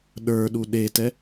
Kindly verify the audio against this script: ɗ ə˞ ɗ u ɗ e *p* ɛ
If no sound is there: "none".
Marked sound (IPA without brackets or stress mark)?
t